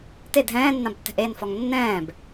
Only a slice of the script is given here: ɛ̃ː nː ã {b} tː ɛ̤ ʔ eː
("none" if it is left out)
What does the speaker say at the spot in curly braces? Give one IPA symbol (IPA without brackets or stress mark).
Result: b